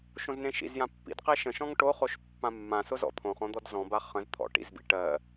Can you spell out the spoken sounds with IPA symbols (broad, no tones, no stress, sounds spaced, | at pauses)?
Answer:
ʃ õ z n ẽ ʃ ḭ z j ã pː ḭ d q e ʃ ə̃ ʃ ɔ̃ ŋ ʈ o χ o ʃ pː ã mː ã s ʊ z ɔ̰ t̪ʰ õ χ õ d̪ ɔ d z ɔ̃ b a χ ə̃ z t̪ʰ ɔ̰ ʈ ḭ z b ḭ ʈ ɜ